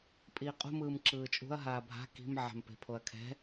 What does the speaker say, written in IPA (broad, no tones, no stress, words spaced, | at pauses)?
pʼiːqʼṳmɯːm ǁɯːt͡ʃʼṳɐ̯ɦaː bʱa̤ ki̤m ʕa̤mpe̤pʰoɐ̯kʰɛ̤